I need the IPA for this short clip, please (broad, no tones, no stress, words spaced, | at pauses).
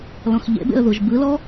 lɔ̃xʎḛbḛə̯ ðuʒbɯlɔ